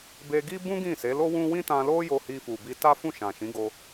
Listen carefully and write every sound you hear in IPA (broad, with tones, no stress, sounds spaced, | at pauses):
b e˧ ɡ i˦ b ũ˦ ɡ ĩ˦˨ s e˨˦ l o˦ w ũ˦ w ĩ˦ t ã˧ l o˦ j o˧ h i˧ f u˨ b i˧ t a˦ f ũ˦˨ ʃ ã˨ ʃ ĩ˨˦ ɡ o˧